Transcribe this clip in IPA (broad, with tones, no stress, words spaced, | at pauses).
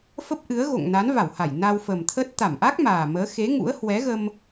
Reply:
fə˦˥p̚ʔɨ˨˦ə̯ɣo̰˧˨ŋ na˨˦nva˧˩wha˧˩j na˧wfə˨˩mt̪ʰə˦˥t̚ t̪a˧˩mʔa˦˥k̚ maː˨˩məː˨˦ xe˨˦ŋṵ˧˥ə̯hwɛ˨˦ɣə˧m